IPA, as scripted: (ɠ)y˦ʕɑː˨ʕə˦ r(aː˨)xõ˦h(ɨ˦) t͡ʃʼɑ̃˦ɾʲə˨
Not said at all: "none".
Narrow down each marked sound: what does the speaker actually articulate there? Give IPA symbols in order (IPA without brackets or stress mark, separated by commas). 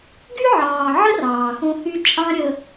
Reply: ɡ, ɑː˨, y˦